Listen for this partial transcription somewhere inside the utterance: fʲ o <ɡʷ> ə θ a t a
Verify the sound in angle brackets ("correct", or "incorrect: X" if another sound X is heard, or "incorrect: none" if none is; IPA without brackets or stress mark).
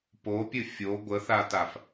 correct